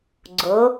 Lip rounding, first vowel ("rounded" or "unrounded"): rounded